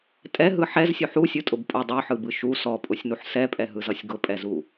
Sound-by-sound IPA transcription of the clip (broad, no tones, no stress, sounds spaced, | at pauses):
tʼ ɛ ɦ ɯ ħ ɛ z sʲ u ħ u sʲ ɯ tʼ ʊ b pʼ ʊ dˤ u ħ ɯ b ɯ ʃ u s ɔ pʼ ʊ sʲ n u ħ s ɛ pʼ ɛ ɦ ɯ z ʌ sʲ ɡ ʊ pʼ ɛ z u